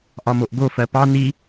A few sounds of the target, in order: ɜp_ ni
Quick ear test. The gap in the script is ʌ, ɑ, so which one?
ɑ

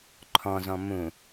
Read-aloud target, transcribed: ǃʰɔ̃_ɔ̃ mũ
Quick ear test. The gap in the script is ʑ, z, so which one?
z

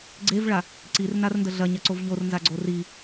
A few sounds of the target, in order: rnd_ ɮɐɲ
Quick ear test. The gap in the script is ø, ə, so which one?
ə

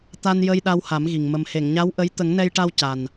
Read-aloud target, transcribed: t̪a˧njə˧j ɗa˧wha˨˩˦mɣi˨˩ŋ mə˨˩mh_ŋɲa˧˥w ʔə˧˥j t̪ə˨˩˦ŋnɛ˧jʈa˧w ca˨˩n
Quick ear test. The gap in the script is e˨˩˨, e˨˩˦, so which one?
e˨˩˨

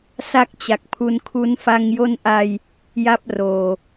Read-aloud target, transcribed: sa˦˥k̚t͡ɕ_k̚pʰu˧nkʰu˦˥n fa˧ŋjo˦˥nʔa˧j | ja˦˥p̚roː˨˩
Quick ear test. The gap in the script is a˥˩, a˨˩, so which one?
a˨˩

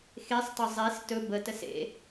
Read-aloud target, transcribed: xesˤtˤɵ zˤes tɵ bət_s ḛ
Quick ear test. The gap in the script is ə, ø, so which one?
ə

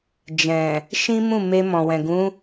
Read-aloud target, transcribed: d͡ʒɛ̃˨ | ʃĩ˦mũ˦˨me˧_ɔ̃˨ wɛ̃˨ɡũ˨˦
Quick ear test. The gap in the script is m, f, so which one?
m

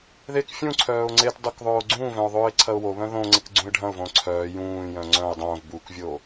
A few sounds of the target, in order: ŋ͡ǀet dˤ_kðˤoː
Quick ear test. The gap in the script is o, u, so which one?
u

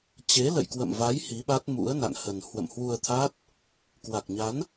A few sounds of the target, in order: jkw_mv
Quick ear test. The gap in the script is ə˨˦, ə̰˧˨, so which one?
ə̰˧˨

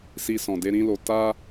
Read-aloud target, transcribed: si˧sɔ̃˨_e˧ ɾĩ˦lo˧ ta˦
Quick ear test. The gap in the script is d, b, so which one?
d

